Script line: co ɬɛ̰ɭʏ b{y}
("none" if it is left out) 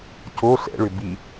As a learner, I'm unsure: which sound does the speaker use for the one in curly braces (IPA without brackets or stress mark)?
i